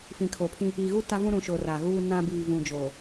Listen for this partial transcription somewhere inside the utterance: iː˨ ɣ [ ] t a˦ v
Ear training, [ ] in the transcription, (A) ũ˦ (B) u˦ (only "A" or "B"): B